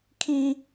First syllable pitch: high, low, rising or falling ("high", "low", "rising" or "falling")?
high